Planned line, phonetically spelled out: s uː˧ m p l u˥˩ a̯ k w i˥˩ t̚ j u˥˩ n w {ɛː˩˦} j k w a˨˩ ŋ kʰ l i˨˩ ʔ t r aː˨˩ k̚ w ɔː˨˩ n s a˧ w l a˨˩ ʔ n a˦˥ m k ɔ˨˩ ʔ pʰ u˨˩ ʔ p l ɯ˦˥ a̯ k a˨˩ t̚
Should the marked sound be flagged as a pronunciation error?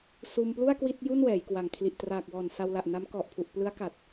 no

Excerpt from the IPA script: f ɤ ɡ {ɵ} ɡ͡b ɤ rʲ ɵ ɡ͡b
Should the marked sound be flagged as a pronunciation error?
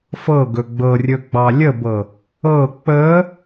no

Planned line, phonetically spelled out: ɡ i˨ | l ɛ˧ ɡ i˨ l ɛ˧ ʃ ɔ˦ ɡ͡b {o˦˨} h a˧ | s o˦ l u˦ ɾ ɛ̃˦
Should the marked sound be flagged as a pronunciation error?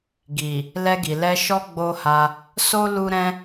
yes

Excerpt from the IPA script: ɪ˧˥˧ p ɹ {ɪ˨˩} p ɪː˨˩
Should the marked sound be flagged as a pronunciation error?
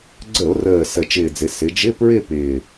yes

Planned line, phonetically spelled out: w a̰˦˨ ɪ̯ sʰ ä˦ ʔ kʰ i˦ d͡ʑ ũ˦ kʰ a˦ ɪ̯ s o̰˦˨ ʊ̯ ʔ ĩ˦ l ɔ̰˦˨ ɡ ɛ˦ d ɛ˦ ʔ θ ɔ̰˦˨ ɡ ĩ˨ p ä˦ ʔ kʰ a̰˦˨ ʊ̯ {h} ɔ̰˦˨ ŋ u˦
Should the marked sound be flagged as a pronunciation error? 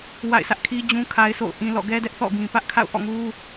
yes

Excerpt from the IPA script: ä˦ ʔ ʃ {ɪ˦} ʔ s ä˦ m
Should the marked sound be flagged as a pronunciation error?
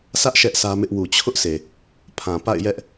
yes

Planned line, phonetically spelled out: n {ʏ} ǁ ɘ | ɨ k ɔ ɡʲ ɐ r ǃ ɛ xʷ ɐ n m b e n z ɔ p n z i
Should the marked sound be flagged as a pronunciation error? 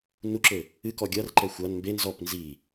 yes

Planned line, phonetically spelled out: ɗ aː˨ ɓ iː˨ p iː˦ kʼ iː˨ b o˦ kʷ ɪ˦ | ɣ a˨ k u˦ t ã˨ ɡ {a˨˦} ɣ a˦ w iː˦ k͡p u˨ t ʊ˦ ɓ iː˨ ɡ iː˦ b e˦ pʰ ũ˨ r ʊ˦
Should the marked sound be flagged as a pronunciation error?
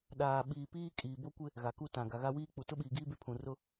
yes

